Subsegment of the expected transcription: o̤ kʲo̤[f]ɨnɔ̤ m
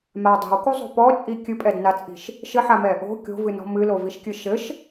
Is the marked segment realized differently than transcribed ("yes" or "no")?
yes